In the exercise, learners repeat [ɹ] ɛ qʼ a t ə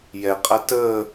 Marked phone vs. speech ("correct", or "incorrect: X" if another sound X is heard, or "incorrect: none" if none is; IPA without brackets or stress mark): incorrect: j